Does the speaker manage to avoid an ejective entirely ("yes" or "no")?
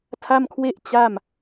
yes